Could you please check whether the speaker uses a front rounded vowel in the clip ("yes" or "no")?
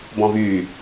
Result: yes